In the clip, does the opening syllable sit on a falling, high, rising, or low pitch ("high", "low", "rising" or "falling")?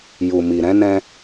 low